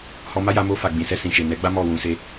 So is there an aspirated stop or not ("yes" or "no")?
no